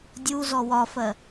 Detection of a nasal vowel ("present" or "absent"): absent